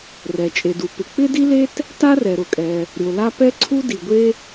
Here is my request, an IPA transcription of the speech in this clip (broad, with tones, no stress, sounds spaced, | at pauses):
r ɛ˩ t͡ʃʼ e˩ d u˩ p ɪ˩ k͡p ɪ˥ d i˥ l e˥ t | t a˥ r ɛ˩ ɾ ʊ˩ kʼ ɛ˩ | ɾʲ o˩ l a˥ p ɛ˥ ǀʰ u˥ d i˩ ɡʷ e˥